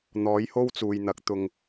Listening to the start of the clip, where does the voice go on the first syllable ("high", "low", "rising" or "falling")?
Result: rising